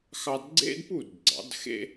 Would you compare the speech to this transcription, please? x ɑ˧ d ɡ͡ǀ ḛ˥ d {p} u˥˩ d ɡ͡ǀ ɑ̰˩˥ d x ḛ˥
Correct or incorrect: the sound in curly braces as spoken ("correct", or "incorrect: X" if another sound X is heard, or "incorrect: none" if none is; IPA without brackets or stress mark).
correct